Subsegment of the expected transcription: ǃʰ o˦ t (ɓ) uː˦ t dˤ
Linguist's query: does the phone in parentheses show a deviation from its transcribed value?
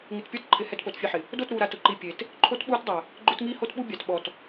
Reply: no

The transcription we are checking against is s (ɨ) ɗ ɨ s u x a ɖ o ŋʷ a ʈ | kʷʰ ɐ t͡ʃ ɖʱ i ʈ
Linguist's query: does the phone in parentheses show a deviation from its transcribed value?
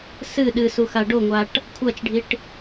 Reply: no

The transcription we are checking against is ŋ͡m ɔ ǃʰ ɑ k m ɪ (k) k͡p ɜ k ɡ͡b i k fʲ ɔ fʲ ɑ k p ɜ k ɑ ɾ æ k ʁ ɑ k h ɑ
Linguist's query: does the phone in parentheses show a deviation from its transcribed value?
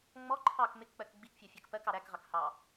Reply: no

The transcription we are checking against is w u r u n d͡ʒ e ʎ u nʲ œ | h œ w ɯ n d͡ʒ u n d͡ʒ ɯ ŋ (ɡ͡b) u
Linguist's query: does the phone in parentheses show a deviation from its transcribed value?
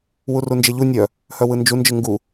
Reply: yes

